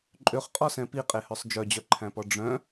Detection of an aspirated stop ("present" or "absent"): present